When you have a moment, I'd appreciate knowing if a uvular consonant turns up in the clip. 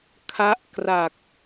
no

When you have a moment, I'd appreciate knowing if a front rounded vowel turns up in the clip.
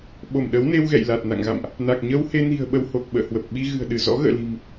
no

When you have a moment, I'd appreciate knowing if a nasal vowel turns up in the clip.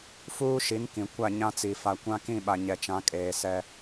yes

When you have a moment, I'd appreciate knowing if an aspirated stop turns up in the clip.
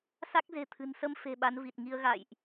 yes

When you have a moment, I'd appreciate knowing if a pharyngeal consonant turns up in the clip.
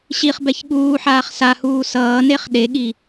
yes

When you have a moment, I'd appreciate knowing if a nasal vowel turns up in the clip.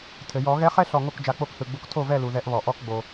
no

